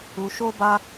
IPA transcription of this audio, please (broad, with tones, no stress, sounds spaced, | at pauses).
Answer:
u˧ ʃ o˦ b a˦